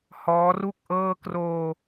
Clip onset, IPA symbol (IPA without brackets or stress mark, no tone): h